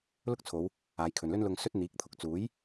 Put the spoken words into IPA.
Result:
l ʊ˥ k̚ t͡sʰ o˨˧ w | aː˨˧ j kʰ ɵ˨ n l ɵ˥ n l ʊ˧ ŋ s ɵ˥ t̚ n̪ iː˨˥ k̚ t̪ʰ ʊ˨ k̚ t͡s uː˨˥ j

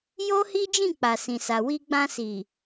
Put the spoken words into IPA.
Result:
j o˦ h i˦ d͡ʒ ĩ˦˨ k͡p a˨ s ĩ˨ s a˨ w i˧ ɡ͡b ã˧ s i˨

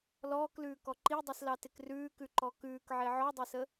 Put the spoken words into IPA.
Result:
l ɔː k l ʉː k ɔ ǃ i dˤ i s l ɑ t ɪ k r ʉː k ʉ ǃ ɔ k ʉː k ʕ e ʕ ɔ dˤ e s ə

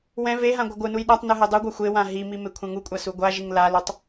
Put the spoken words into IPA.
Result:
w ɛ̃ v e ɦ ã ɡʷ ʌ ɡʷ ɯ n u j ɗ a tˤ n ɯ ɦ e dˤ u ɡʷ a xʷ e w ã ɦ i m i m e kʷʰ ɛ̃ ŋ u kʷʼ a s u ɡʷ a ʒ i ŋ l a l o tˤ

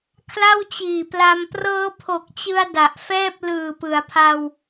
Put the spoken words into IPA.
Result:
kʰ l a˥˩ w t͡ɕ iː˨˩ p l a˧ m p r ɤː˦˥ pʰ o˨˩ k̚ t͡ɕ ɯ˧ a̯ d a˨˩ ʔ f ɛː˥˩ p̚ l ɯː˨˩ p ɯ˩˦ a̯ pʰ a˧ w

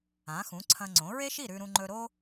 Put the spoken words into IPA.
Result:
ã˩˥ x ũ˩˥ ǀʰ ɐ̃˧ ŋ͡ǀ õ˩˥ ɹ e˥ ʃ i˥˩ ɾ ʉ˧ ɾ ũ˧ ŋ͡ǃ ɵ˧ ɾ o˥

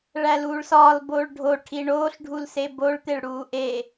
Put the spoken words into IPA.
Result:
ɭ æ l uː ɭ s ɒː l b oː ɭ ɖʱ o ʈʰ i ɳ oː ɬ ɖʱ u l s e b o ɭ t̪ e ɭ ɽ uː ʔ e

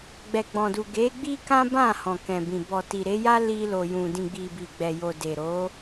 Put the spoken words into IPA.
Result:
ɡ͡b ɛ˨ ɡ͡b ɔ̃˨ d u˨ ɡ e˨˦ ɡ͡b i˦ k ã˦ b ã˦˨ h ɔ̃˨ k ɛ̃˨ b ĩ˨ b ɔ˨ t i˨ ɾ e˨˦ j a˦ l i˧ l o˨ j ũ˨ d ĩ˨ ɡ͡b i˨ b i˨ ɡ͡b ɛ˨ j o˨ d e˨ ɾ o˨˦

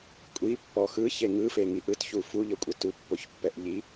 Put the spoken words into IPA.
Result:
kʷʼ i pː ɔ x ɯ ç e ŋ ɯ f e ŋ i ʔ ɯ t ç u f u ʎ ɤ kʷʼ ɯ t u pː o ç pː ɛ ʔ ʎ i

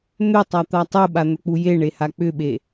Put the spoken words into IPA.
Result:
n̪ ʏ tˤ a t̪ a tˤ u ɓ a n̪ ɵ k͡p u j e ɳ e h a k͡p ʏ ɓ e

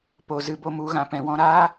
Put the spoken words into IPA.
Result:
p o˨ z ɨ˧ b o˦ m u˨˦ ɣ ã˨ p ɛ̃˨ w ɔ̃˧ ɾ aː˦

